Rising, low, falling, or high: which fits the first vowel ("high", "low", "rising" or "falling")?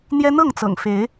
high